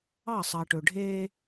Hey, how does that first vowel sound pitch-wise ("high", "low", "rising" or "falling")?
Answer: falling